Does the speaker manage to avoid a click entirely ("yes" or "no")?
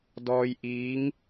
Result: yes